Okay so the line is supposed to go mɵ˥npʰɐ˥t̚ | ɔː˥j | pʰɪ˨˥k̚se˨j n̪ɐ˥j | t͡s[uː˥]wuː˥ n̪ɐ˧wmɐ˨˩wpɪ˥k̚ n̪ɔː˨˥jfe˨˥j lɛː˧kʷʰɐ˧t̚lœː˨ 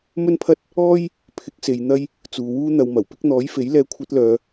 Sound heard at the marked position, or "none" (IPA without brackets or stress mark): uː˨